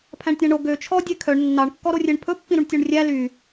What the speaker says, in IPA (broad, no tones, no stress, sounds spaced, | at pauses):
pʰ æ̃ ɳ tʲ æ̃ ɳ o ɡ ø t͡ʃʰ ɔ dʲ e kʰ œ ɳ nː ɑ ɳ kː ɔ ɾ o rʲ e ɳ pʰ ɵ pː ĩ ɾ u ɳ tʲ u ɳ rʲ æ l y